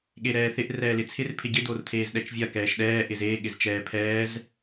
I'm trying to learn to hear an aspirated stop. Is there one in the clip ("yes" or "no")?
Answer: yes